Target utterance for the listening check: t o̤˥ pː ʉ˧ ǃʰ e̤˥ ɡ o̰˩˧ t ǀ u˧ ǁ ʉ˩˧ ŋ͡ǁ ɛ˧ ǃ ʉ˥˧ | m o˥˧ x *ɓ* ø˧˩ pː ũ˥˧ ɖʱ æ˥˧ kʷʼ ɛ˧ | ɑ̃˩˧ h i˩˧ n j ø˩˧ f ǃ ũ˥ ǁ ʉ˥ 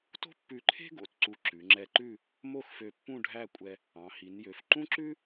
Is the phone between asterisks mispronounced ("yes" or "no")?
yes